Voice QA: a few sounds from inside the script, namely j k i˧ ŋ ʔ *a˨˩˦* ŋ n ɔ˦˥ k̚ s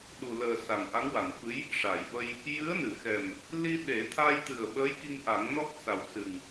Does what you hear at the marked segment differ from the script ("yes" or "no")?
no